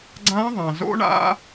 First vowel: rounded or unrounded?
unrounded